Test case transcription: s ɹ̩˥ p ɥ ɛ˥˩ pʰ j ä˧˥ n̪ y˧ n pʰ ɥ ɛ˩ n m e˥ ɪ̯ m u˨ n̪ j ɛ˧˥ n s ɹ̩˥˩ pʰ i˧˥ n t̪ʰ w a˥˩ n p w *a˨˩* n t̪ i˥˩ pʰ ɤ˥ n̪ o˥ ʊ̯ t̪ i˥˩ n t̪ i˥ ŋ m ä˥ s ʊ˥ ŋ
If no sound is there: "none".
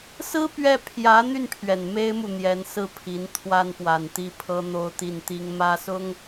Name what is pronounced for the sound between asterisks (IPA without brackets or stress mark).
a˨˩